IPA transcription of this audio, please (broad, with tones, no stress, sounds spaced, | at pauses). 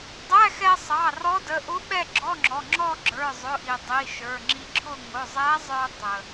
dˤ æ˧˥˧ x ɛ˧ sˤ ɑ˩˧˩ r ɔ˧˥ d ə˩˧˩ ʔ ʊ˧˥ ɓ ɛ˥˧ ɡ͡ǁ ɔ˧˥˧ ŋ͡ǁ ɔ˩˧˩ ŋ͡ǁ ɔ˥˧ ɡ͡ǁ ə˞˩˧˩ zˤ ʊ˩˧˩ ʔ i˩ dˤ i˩˧˩ ʃ ə˞˩˧˩ ŋ͡ǁ i˧ ǁʰ ʊ˥˧ ŋ ʊ˩˧˩ zˤ æ˧˥ zˤ ə˞˧ tˤ ə˩